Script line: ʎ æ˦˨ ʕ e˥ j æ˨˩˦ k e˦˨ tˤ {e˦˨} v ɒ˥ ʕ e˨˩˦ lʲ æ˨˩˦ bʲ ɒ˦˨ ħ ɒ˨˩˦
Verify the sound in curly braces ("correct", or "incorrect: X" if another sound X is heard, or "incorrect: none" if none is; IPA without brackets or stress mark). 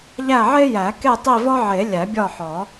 incorrect: i˦˨